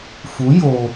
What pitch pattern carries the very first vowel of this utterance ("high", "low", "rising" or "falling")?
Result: rising